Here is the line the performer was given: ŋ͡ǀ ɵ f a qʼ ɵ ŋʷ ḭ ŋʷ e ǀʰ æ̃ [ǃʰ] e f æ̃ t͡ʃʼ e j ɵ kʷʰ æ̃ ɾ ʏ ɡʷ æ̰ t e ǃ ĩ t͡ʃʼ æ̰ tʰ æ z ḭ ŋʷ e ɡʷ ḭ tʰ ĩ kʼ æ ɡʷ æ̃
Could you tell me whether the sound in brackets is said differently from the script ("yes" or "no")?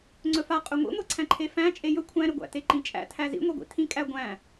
no